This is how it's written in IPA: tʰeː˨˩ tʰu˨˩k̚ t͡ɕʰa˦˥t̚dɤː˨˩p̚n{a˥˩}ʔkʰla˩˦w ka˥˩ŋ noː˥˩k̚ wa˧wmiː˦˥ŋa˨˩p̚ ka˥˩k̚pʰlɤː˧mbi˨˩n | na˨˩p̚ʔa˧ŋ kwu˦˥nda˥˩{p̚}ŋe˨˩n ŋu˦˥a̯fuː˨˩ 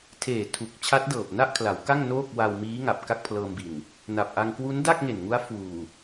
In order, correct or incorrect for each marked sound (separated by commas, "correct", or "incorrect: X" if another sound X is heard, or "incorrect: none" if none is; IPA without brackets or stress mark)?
correct, incorrect: k̚